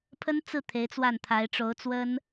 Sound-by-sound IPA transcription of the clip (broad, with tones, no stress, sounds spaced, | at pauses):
pʰ ə˥ n t͡s ɹ̩˥˩ t̪ʰ e˧˥ ɪ̯ t͡s w a˥˩ n t̪ʰ a˧˥ ɪ̯ ʈ͡ʂ o˧˥ ʊ̯ t͡s w ə˥ n